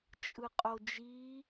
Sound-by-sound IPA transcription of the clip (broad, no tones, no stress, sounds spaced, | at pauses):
t͡ʃʼ ɯ qʼ o d͡ʒ i